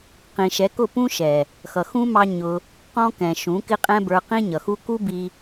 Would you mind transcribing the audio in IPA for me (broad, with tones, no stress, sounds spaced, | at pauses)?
q ĩ˨ ʃ ɛ˨˦ k ʊ˦˨ p ũ˦ ʃ ɛ˨ | x ʌ˨ x ũ˦ m ɑ˦ ɲ ʊ˧ | q ɔ̃˦ k ɛ̃˨ ʃ ũ˨˦ k ɪ˦ qʼ ɛ̃˦ b ə˞˧ q ĩ˦ ɲ ʌ˨ x u˦ k u˦ b i˦